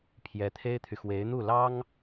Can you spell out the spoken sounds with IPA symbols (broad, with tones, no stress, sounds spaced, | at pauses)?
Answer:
pʰ j ɛ˧˥ t̪ʰ e˥ ɪ̯ t̪ʰ y˨ x w e˧˥ ɪ̯ n̪ u˥˩ l ɑ˥ ŋ